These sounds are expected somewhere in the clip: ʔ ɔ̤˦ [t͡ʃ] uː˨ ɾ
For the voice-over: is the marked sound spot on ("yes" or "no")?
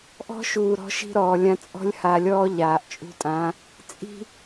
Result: no